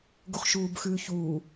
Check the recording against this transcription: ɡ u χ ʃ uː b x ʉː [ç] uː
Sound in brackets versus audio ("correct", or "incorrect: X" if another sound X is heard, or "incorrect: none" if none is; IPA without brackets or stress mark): correct